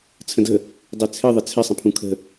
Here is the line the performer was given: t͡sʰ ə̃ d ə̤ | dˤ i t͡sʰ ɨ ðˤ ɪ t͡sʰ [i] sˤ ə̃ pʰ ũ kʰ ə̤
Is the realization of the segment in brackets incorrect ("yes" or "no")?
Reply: yes